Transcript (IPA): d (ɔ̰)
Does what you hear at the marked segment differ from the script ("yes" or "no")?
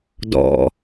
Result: no